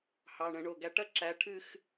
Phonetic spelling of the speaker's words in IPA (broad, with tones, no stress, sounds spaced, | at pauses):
h ɑ˩˧˩ ɳ ə̃˨˩˦ ɳ o˩˧˩ ɡ æ˨˥ ʈ ɐ˥ ǁ æ˨˥ ʈʰ ɨ˥˧ x